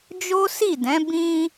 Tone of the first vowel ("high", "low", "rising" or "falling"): high